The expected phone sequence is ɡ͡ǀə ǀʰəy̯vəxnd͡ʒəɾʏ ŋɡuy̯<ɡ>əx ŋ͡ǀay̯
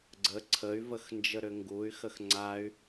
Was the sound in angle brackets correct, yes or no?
no